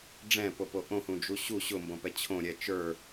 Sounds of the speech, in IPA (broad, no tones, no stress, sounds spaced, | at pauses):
ɖ͡ʐ ɛ̃ p o p o ʔ õ h ũ d͡ʒ u ɕ u ɕ ʊ m b õ p ɛ t͡ɕʰ õ ɾʲ ɛ t͡ʃ ə˞